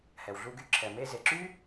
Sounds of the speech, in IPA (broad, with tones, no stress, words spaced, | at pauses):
hɛ˩wɮu˧ɡy˧ ǁʰɛ˩me˧ ze˩ǁy˥